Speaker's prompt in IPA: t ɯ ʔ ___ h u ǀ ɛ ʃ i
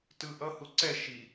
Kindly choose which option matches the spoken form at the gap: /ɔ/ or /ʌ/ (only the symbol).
ʌ